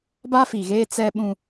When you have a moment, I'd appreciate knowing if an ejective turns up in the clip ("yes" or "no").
no